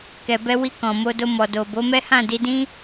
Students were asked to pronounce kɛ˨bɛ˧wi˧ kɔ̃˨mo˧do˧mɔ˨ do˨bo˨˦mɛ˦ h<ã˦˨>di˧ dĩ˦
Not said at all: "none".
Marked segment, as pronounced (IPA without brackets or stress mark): ã˦˨